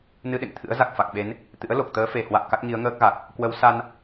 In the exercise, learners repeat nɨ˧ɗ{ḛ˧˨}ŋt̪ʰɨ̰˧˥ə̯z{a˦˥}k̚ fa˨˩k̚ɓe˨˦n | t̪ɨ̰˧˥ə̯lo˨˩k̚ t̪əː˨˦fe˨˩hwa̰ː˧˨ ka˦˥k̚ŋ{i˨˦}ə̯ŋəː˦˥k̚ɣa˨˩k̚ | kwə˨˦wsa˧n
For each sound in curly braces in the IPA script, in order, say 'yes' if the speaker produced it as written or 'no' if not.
yes, no, yes

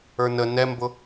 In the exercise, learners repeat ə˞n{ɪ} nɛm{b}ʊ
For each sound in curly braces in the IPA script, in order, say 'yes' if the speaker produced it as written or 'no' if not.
no, yes

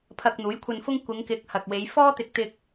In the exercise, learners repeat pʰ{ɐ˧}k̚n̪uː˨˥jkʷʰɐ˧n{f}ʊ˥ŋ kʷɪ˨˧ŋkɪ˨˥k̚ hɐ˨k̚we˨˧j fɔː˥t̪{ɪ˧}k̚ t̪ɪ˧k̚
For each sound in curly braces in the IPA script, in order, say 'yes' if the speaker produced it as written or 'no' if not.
yes, yes, yes

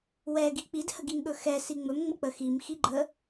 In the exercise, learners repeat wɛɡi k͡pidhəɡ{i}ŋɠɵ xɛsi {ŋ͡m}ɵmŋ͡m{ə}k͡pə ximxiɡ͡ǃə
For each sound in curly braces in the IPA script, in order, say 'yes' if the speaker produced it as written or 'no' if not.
yes, yes, yes

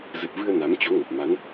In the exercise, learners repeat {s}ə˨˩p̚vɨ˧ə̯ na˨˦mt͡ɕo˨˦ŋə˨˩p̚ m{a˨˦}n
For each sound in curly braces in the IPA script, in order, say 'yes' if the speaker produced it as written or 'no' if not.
no, yes

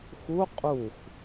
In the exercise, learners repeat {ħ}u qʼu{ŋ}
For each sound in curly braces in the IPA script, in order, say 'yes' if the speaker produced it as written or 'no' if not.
no, no

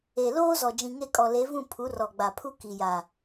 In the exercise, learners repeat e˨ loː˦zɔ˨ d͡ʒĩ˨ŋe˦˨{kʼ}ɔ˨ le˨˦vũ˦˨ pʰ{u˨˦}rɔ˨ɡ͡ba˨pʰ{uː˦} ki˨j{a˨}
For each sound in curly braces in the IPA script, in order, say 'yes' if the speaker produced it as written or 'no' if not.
yes, yes, no, yes

